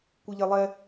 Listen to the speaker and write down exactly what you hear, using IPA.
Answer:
kʷɯʎelˠɛ

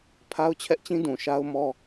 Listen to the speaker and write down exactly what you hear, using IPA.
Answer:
pʰa˦ʊ̯t͡ɕʰɛ˦ʔt͡ɕĩ˦dũ˨ ʃa˦ʊ̯mɔ˦

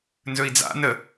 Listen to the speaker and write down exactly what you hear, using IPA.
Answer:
nzɵi̯d͡za̰ nə

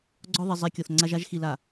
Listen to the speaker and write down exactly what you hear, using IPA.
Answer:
ɡ͡ǀɔ˦ðˤi˨ zˤi˨˦ kʲɔ˨θŋ͡ǀa˦ʒ a˦ʒxi˨la˨

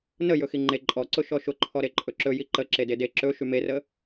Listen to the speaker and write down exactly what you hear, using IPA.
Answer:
nə jɵxiŋ͡ǃe ǃʼɔǀʊ ʃɔʃʊǃʰɔɾe ǃʼɵǁɵ jiǃə ǁedede ǁɵ ʃymerə

